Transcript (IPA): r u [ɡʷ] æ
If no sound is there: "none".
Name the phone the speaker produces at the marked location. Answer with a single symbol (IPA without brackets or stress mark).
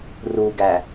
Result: ɡ